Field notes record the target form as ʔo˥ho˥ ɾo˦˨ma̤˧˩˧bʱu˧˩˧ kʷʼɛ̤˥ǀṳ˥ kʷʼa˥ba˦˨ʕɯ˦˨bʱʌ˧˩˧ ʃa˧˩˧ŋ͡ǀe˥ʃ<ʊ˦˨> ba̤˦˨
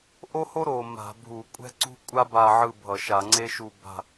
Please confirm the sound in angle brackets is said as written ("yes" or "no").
no